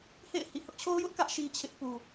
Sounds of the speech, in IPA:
h ḛ˦˨ ɪ̯ h ḭ˦˨ h ʊ˦ ʔ t͡ɕʰ o˦ ʊ̯ j ʊ˦ ʔ k ä˦ ʔ ʃ i˦ t͡ɕʰ ɪ˦ ʔ p u˨

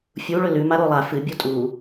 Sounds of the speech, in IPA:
fʲ u ɭ ɵ l ʉ m a ɾ o lˠ a f ɨ bʲ u tʼ u

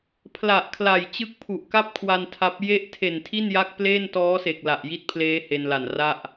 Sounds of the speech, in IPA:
pʰ l a˨˩ ʔ kʰ l a˨˩ j t͡ɕ ɯ˦˥ k̚ pʰ u˨˩ ʔ k a˥˩ p̚ kʰ w a˧ n tʰ a˦˥ p̚ j e˦˥ ʔ tʰ e˨˩ n tʰ i˥˩ n j a˦˥ k̚ p l eː˥˩ n t ɔː˦˥ s e˨˩ k̚ l a˨˩ ʔ j i˦˥ t̚ pʰ l eː˦˥ h e˧ n l a˨˩ n r a˥˩ ʔ

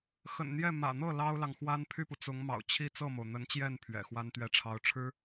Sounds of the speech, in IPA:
x ə̰˨˩ n n̪ j ɛ˥˩ m ä̰˨˩ n̪ ɤ˥˩ l ɑ˥ ʊ̯ l ɑ˨ ŋ x w a˥ n pʰ y˥˩ p u˩ t͡s ʊ˧˥ ŋ m ɑ̰˨˩ ʊ̯ t͡ɕʰ i˥ t͡s ɤ˥˩ m o˩ ʊ̯ n̪ ə˧˥ n t͡ɕ j ɛ˥˩ n pʰ ɥ ɛ̰˨˩ x w a˥ n t̪ ɥ ɛ˥˩ ʈ͡ʂʰ ɑ˧˥ ʊ̯ ʈ͡ʂʰ ɻ̩˥

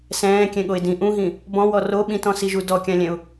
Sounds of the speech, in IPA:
s ɛ̃ː kʲ ɛ̃ ɠ o ɪ̯ d ĩ ʔ ũ ɦ ĩ | b ɔ̃ w ɔ r o ɓ ĩ t ɔ̃ s i ʒ u d ɔ kʲ ã lʲ ɛ̃ ʊ̯

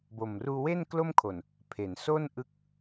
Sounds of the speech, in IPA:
b o˨˩ m r uː˧ w e˥˩ n k l o˥˩ m kʰ o˨˩ n | pʰ e˩˦ n s o˥˩ n ʔ ɯ˦˥ k̚

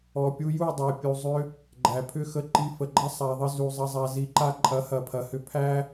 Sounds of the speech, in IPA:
ɔ˨ pʲ u˧ j u˦˨ dˤ æ˨ pʲ u˨ zˤ ʏ˧ | ɡ͡ǃ æ˨ pʰ ʏ˦ x ə˧ ǃ i˧ f ə˨ ɡ͡ǃ ɐ˦ sˤ a˨ ðˤ ə˧ z u˨ zˤ ɐ˧ zˤ a˧ z i˧ ǃ a˦ ǃʼ ɐ˨˦ h ɐ˨ pʰ ɐ˨ h ʏ˧ pʰ æ˦

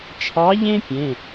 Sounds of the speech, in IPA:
t͡ʃʰ ɑ˧˥ ʎ ẽ˥ pʲ ẽ˧˥˧

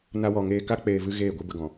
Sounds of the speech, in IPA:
n a˧ w ɔ˨ ŋ eː˧ k a˦ k͡p eː˧ v ɨ˦ ɣ eː˦˨ ɡʷ ɨ˦ b ə˧ ɡ ɔ̃˨

